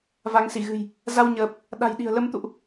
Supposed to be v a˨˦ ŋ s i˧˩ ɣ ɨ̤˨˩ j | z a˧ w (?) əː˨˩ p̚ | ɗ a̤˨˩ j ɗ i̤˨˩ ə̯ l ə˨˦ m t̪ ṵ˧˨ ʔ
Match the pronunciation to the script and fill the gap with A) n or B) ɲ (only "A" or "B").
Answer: B